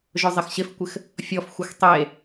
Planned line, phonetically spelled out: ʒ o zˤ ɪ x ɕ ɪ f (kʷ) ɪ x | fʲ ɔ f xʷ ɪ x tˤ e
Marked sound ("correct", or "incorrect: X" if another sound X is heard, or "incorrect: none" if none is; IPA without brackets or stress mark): correct